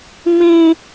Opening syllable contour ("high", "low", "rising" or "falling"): high